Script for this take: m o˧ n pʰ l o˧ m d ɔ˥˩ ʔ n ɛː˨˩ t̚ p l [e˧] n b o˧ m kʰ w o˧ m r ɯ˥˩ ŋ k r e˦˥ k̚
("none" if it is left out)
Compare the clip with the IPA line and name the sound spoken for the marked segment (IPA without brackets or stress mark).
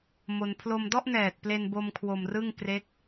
e˧